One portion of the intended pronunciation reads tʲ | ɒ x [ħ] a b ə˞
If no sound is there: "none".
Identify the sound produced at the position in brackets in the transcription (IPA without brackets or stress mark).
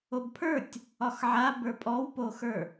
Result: ʕ